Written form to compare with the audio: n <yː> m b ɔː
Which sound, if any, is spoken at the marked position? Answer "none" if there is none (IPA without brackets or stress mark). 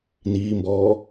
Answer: iː